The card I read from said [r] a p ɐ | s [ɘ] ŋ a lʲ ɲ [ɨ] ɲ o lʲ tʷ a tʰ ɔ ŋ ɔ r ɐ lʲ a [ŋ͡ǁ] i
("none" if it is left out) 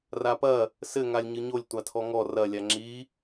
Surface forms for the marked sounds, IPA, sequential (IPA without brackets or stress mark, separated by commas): r, ɘ, ɨ, ŋ͡ǁ